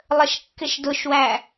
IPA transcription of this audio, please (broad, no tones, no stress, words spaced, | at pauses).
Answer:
lˠəʃkːɪʃdʊʃwæ